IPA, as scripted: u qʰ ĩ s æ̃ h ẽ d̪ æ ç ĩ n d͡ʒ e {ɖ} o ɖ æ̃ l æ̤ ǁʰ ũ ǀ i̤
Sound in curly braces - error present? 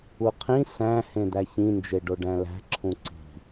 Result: no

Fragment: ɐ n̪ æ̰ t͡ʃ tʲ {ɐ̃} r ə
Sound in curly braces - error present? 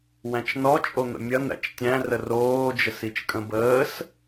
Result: yes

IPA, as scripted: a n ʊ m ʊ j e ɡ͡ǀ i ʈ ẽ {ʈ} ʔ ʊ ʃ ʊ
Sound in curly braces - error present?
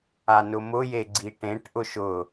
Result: no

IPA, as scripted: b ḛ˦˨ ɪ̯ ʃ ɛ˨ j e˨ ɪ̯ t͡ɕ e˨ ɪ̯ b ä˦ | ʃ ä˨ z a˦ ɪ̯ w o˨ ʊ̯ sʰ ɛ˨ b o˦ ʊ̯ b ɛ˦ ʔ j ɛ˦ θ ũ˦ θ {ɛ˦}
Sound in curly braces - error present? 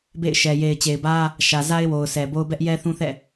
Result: yes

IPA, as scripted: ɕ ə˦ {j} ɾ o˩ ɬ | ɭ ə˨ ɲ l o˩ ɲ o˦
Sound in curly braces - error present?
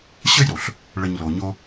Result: no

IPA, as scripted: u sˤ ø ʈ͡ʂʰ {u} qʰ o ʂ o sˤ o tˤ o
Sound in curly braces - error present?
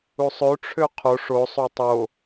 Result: yes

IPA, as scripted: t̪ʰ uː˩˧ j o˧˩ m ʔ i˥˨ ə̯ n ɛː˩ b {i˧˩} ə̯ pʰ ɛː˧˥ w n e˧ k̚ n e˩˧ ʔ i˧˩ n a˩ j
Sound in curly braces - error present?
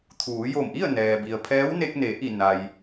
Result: yes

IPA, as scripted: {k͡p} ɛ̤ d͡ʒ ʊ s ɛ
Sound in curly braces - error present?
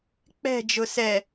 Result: no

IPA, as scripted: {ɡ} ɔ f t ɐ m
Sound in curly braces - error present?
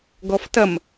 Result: no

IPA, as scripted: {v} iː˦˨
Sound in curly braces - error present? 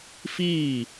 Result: yes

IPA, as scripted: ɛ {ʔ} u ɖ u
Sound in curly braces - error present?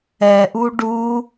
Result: no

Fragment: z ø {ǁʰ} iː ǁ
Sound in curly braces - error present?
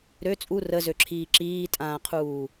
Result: no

